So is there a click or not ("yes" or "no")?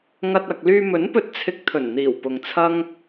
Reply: no